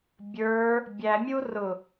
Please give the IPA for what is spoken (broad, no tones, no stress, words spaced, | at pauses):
bʲə˞ | bʲæmʲurʊ